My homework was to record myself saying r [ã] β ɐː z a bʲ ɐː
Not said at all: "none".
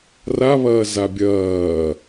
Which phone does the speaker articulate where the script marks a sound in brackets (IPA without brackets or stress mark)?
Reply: a